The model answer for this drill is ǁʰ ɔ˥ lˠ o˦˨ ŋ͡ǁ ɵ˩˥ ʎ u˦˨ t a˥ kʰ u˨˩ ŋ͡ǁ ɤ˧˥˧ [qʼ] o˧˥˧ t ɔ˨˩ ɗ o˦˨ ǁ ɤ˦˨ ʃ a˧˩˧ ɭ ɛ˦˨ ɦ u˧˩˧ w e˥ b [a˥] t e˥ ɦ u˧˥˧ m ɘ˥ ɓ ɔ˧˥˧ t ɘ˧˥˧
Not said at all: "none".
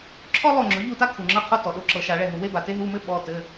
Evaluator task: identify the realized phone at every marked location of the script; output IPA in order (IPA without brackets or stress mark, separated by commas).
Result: qʰ, a˨˩